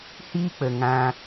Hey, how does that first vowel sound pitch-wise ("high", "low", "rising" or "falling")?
high